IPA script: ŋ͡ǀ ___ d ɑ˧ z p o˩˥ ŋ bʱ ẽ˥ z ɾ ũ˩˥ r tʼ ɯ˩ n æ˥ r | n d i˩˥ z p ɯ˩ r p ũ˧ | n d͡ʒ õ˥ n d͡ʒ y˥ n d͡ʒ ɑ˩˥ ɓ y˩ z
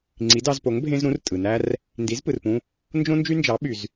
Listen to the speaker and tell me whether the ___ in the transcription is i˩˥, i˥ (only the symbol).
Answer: i˩˥